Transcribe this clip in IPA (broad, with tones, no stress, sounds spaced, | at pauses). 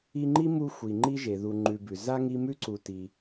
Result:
i˦ ŋ͡ǃ i˥ m u˦ xʷ i˨ ŋ͡ǃ i˥ ʒ e˩ ð u˨ ŋ͡ǃ ʉ˨ b ʉ˩ z a˥ ŋ i˦ m ʉ˥ ǀ u˨ t i˨